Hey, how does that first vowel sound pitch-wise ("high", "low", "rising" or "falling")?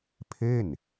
falling